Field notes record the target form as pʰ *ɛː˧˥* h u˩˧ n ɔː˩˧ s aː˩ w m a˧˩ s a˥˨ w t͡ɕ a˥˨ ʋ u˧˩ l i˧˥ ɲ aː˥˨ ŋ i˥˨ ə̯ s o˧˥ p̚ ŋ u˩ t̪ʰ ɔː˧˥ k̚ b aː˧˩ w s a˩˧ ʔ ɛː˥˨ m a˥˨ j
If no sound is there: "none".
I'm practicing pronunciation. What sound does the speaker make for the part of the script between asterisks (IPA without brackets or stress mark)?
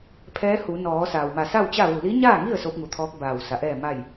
ɛː˧˥